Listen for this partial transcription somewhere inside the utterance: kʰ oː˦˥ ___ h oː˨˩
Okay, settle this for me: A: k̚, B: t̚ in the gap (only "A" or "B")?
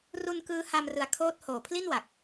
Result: B